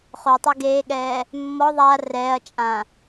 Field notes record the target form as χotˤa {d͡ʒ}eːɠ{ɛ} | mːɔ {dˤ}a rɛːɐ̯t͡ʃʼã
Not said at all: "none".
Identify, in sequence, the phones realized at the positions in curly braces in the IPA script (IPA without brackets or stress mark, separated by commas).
ɡ, ɛː, ðˤ